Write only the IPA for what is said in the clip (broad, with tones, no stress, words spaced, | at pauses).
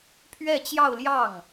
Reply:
pʰɥɛ˥˧t͡ɕjɑ˥˧ʊ̯ljɑ˥˩ŋ